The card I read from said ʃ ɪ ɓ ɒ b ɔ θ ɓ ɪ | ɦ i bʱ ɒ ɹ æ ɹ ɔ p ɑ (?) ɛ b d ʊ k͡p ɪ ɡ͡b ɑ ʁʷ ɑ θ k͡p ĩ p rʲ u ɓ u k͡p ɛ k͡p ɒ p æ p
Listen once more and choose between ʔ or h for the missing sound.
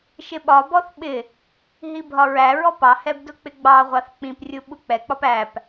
h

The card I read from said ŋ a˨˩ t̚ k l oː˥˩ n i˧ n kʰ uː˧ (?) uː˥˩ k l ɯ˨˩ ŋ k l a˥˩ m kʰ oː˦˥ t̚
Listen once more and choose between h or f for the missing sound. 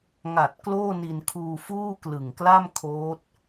f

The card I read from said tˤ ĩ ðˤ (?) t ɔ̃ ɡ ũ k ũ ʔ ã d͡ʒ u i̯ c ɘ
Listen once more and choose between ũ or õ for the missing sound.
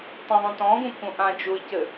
ũ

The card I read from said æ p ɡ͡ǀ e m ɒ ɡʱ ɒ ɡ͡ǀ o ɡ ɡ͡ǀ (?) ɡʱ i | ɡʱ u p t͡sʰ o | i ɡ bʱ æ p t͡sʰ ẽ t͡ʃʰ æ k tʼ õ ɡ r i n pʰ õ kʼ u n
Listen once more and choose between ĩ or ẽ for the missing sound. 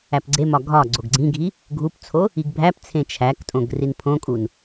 ĩ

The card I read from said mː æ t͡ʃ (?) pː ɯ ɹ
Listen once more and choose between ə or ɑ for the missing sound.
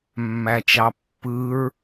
ɑ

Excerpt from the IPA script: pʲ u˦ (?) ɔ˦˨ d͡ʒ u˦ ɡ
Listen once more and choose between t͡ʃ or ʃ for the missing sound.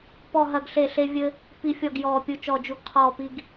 t͡ʃ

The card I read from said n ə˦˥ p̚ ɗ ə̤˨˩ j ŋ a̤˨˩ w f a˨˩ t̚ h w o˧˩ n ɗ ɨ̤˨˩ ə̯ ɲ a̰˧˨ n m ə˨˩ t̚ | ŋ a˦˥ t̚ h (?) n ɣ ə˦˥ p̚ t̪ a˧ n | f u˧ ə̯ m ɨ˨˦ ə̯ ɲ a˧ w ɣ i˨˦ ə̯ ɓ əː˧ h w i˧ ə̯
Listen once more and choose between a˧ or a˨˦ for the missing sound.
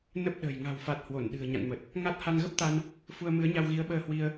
a˧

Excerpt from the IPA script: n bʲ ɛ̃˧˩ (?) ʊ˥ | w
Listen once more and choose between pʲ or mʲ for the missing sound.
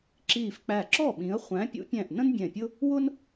pʲ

